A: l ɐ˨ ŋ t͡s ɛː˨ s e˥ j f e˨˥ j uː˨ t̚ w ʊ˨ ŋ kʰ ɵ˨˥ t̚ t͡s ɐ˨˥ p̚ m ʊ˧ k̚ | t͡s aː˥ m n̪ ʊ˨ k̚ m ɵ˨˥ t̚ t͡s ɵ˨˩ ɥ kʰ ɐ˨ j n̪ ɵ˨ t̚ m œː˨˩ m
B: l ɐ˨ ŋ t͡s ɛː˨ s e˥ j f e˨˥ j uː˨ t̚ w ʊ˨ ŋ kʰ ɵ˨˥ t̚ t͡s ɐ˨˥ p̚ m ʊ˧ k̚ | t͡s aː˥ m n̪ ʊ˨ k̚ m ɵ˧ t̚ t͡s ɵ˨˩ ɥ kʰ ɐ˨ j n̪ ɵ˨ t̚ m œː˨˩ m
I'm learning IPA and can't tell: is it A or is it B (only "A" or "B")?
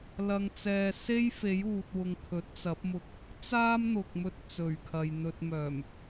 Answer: B